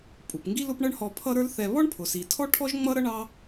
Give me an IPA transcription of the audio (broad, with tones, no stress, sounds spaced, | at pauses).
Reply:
pʼ u˩ p ŋ ɡ i˥ l ʊ˥ p ɳ ʌ˥ ɳ h ɔ˧ pʰ ʌ˥ ɾ ə˞˥ l θ ɛ˧ β ɔ˥ ɳ pʰ ʊ˩ s i˩ tʰ ɔ˥ ʈʰ ɔ˥ ʒ ŋ͡m ʌ˥ ɾ ʌ˥ ɳ ɑ˥